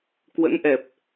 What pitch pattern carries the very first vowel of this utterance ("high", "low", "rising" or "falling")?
rising